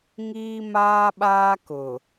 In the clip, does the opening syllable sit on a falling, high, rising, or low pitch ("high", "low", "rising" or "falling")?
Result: high